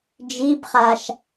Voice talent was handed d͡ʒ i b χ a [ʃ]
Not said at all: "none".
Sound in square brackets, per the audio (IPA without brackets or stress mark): ʃ